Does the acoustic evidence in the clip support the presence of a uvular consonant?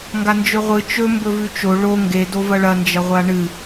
yes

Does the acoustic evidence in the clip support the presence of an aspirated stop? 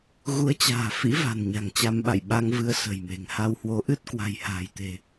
no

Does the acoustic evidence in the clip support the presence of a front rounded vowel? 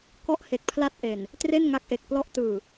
no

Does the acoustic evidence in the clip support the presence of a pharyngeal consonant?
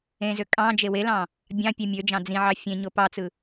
yes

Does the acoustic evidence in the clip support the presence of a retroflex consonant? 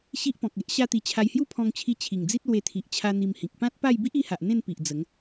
no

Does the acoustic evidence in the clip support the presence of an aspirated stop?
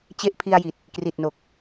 yes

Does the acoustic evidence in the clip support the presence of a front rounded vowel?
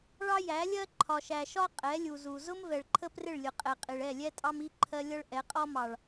no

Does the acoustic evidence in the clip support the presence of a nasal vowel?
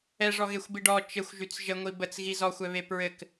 no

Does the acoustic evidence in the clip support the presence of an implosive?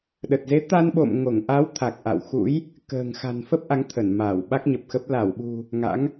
yes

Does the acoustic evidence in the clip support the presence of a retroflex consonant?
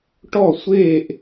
yes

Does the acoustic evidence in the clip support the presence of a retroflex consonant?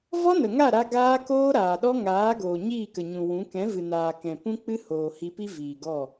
no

